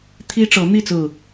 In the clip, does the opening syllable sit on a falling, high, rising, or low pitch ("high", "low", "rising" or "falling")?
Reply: high